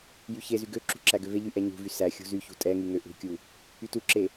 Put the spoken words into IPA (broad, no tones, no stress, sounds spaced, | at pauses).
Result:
j y ç e z y ɡ ø ǁ ṳ ǁ æ ɡ ø v e ʎ y ʔ ɛ ɲ ṳ v y s æ xʲ ṳ z y ç ṳ tʼ ɛ ŋ y ŋ ø ʔ ṳ kʲ u | y t u ǁ e